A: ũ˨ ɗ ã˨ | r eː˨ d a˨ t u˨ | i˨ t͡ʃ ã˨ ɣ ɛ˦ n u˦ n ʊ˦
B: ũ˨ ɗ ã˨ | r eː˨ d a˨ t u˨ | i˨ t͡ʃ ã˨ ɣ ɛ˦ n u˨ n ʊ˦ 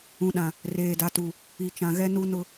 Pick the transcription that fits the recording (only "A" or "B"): A